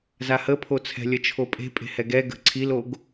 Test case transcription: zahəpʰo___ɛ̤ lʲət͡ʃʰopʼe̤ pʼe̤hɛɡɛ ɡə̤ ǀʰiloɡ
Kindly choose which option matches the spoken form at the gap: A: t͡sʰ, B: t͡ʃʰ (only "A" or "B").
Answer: A